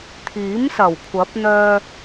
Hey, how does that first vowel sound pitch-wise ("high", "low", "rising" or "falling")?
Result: rising